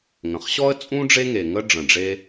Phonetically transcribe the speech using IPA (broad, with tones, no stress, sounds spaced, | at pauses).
ŋ ə̃˩ χ ɕ ɔ˥ ə̯ t͡sʼ ũ˥ ɖ͡ʐ e˥ ŋ e˩ ŋ ə˥ ɖ͡ʐ ə̃˩ ɖ͡ʐ e˥